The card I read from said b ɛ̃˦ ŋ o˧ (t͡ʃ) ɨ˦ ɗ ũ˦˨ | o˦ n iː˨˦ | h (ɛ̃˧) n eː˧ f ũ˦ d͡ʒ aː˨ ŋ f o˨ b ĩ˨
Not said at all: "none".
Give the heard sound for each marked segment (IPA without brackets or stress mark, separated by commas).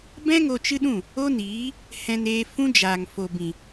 t͡ʃ, ɛ̃˧